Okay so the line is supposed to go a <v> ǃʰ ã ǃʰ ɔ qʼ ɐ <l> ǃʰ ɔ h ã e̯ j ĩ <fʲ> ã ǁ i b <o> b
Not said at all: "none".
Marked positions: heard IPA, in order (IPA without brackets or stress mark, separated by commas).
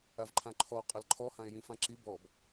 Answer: v, l, f, ɔ